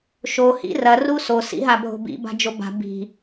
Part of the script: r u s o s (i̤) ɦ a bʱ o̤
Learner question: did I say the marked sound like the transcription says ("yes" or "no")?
no